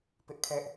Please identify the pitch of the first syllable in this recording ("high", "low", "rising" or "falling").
high